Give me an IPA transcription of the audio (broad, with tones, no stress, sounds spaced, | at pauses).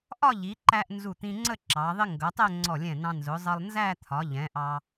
ʔ ɒ˥˧ ʎ i˩˧ ǃ æ˧ ʔ n z u˧˩ t̪ ĩ˧ ŋ͡ǀ ə˥˧ ǁ ɑ˩˧ ðˤ ɪ˥ ŋ ɡ ʌ˩˧ tˤ ɛ˥˧ ŋ͡ǀ ɔ˧˩ lʲ ɛ̃˧˩ n ɑ̃˧ n z ʊ˩˧ zˤ ʌ˧ lˠ n z æ˥˧ t̪ʰ ɒ˩˧ ʎ ɛ̃˩˧ ʔ ɑ˧